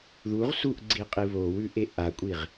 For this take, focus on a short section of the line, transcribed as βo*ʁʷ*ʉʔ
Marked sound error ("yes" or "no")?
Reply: yes